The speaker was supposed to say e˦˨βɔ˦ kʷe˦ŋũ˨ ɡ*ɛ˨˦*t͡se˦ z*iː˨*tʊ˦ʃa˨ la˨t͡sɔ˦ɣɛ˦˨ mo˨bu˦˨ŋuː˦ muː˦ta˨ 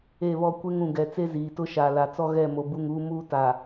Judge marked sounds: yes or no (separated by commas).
yes, yes